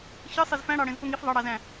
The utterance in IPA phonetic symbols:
ç ɯ sˤ ɯ z f æ̃ ɽ ɑ ɽ ẽ z p o ŋ i f ðˤ ɑ ɽ ɑ z æ̃

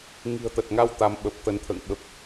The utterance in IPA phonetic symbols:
ŋ i̤˨˩ ə̯ t̪ ə˨˩ t̚ ŋ a˧ w t̪ a˨˦ m ɓ ə˨˩ p̚ t̪ ə˨˦ n t̪ʰ ə̰ː˧˨ ŋ ɓ ə˨˩ p̚

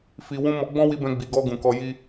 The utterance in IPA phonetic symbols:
f i˨ w ũ˧ m ɔ˧ ɡ͡b ɔ̃˦ w i˧ b ɛ̃˧ ɡ͡b i˨ ɡ ɔ˧ ɡ ũ˨ k ɔ˧ j i˦

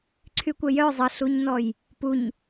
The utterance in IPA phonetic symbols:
ǀʰ y kʷ ə j œ zˤ ə ɬ u ɲ n ɔ j | p u ɲ

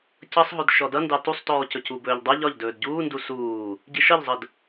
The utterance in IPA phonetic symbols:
c ʌ sˤ ɦ ɵ d ʃ ɔ d ʌ n d ɑ t u sˤ t ɔː c ɵ c u b ɵː ʎ dˤ ʌ ʎ ɒ ʎ d ɵː d ɟ uː n d u s uː | ɟ i ʃ ʌ ʎ zˤ ə d

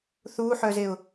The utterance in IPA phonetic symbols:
θ u ħ œ z e ʊ̯

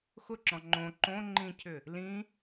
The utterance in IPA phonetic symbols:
x ʊ ǁ ɔ̃ ŋ͡ǃ õ ǃ õ ŋ͡ǃ ĩ cʰ ʏ | l ĩ

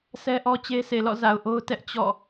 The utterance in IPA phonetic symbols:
s ɛ˦ ʔ ɔ˦ t͡ɕ e˦ sʰ e˨ l ɔ̰˦˨ z a˨ ʊ̯ ʔ o˦ ʊ̯ t ɛ˦ ʔ t͡ɕ ɔ̰˦˨

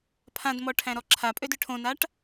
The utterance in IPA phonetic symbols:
pʰ ã d m ɔ ʈʰ æ̃ ɾ ɔ ǁʰ a pʼ ø d ʏ ʈʰ õ n a ʈ

